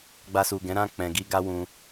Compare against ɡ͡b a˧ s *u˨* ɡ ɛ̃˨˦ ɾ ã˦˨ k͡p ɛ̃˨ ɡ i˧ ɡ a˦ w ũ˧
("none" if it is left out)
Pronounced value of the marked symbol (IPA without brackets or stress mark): u˨